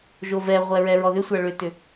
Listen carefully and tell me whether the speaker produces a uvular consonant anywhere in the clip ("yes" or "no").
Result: yes